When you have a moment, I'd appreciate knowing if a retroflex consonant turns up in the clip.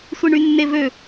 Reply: yes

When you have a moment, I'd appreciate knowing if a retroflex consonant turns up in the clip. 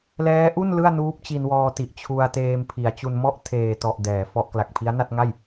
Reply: no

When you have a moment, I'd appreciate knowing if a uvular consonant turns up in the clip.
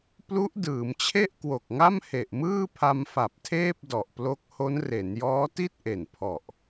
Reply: no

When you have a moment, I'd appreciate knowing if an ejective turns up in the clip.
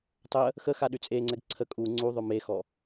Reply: yes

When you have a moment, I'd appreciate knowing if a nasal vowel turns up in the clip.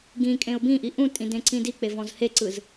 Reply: yes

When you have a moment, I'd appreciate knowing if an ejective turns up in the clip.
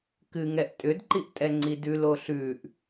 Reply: yes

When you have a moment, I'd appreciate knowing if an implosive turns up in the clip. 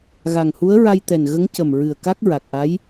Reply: no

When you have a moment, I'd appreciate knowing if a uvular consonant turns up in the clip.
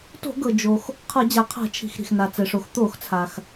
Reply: yes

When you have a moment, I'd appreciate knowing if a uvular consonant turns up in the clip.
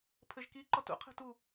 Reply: yes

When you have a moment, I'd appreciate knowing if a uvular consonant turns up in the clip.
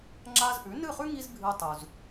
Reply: yes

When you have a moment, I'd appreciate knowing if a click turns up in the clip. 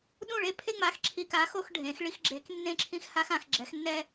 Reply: yes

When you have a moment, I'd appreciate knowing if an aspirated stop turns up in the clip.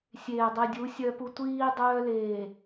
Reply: no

